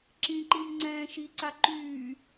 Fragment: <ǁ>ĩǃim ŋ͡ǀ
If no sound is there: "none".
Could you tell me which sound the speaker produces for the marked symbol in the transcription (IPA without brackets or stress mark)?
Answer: ǁ